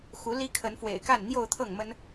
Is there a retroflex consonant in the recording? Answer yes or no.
no